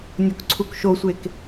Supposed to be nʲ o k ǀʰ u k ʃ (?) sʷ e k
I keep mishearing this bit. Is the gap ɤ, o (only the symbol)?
o